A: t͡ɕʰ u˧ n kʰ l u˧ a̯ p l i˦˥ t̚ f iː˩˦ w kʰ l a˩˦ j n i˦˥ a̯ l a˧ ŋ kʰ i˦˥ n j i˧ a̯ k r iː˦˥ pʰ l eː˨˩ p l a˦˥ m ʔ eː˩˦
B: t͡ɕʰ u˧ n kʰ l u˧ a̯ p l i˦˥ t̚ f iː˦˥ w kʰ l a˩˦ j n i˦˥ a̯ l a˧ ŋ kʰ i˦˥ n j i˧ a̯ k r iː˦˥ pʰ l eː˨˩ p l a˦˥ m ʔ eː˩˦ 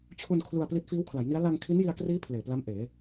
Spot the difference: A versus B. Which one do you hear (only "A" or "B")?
B